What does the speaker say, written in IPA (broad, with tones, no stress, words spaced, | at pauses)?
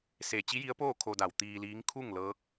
se˧˩ t͡ɕi˧˥ji˧˥ə̯poː˥˨ kʰo˧da˧˩w t̪iː˧liː˧˥ŋ kʰu˥˨ŋlɤː˧˥k̚